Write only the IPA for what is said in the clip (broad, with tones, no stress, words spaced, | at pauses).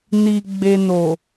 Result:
ni˨ ɡ͡be˨no˨